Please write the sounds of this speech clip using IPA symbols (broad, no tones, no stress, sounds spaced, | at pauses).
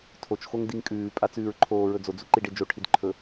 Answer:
tʰ o t͡ʃ x o ŋ d i ŋ kʼ ʉː pʼ a t͡s ʉː ɹ ǃʰ oː ɹ ɵ d͡z o d͡z u ǃ i ɖ e d͡ʒ o ʈʰ i d ǃʰ ɵ